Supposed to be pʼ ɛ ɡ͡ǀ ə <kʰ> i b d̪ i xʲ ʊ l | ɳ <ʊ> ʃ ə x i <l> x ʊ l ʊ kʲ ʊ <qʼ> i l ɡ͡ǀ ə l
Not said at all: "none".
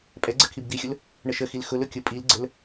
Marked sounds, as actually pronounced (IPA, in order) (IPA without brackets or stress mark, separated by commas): kʰ, ə, l, pʼ